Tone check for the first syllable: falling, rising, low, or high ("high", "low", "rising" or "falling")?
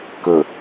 low